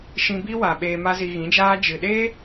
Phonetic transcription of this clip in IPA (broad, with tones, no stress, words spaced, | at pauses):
ʃĩ˧bi˦wa˨ ɓeː˧ma˦zi˧ ɣĩ˨˦d͡ʒaː˦ d͡ʒɨ˨ɗeː˦